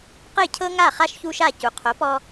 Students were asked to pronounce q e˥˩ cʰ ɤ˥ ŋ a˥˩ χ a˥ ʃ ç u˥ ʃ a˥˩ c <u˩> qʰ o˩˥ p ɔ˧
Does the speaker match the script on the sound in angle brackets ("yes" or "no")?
yes